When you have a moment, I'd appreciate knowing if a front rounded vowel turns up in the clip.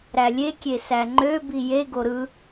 yes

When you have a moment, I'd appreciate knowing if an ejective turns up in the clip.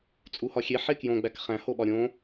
yes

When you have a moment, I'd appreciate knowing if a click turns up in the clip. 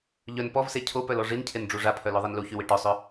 no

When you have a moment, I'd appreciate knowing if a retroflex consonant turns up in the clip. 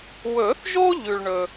yes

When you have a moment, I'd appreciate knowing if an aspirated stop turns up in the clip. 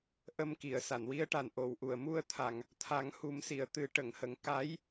yes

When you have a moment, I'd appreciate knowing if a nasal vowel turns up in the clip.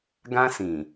yes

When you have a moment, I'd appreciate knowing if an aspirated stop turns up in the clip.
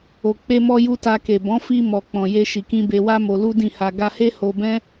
no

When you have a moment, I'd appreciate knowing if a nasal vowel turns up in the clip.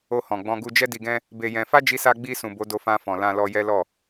yes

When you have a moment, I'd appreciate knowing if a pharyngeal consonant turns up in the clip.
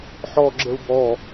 yes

